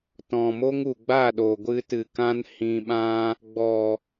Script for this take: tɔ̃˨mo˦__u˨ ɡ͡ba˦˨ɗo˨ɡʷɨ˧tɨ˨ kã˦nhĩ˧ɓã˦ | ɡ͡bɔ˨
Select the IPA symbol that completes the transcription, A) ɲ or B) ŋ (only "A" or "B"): B